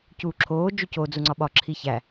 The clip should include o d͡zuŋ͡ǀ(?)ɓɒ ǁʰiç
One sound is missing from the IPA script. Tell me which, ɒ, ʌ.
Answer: ɒ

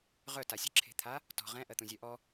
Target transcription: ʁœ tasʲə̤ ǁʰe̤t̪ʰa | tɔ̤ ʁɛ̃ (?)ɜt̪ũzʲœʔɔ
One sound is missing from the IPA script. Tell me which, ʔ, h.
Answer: ʔ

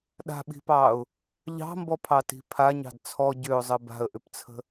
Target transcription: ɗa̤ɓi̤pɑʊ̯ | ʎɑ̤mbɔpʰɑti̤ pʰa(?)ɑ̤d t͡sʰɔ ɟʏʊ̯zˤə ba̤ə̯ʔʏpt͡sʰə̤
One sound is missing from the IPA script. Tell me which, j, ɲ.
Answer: ɲ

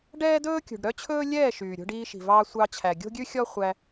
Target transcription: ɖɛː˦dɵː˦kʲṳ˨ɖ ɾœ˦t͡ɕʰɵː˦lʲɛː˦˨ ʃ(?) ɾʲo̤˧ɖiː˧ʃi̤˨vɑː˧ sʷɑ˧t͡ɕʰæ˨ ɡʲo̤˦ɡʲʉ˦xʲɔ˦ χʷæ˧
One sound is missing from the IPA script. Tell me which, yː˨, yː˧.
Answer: yː˨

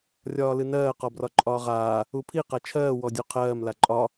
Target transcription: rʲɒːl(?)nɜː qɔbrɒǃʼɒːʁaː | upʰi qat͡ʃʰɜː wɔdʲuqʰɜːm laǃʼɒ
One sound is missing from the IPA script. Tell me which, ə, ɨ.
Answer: ɨ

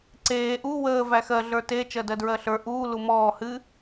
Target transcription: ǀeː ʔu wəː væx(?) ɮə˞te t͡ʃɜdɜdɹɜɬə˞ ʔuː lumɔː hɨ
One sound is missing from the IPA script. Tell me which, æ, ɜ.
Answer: ɜ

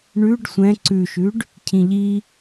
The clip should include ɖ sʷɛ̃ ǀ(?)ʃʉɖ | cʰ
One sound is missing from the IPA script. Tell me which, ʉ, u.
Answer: ʉ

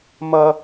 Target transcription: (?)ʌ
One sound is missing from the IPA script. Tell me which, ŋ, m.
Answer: m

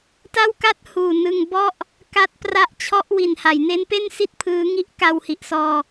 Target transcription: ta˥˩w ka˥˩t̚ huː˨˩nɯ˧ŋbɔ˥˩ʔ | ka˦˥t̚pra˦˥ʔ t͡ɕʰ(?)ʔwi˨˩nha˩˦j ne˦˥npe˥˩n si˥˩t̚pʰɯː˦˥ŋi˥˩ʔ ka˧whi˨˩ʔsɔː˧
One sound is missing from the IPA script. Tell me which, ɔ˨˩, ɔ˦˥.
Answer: ɔ˦˥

